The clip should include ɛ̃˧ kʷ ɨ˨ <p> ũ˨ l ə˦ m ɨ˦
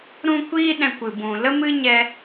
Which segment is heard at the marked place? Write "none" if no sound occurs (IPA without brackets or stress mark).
b